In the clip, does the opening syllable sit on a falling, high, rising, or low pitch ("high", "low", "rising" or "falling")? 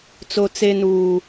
high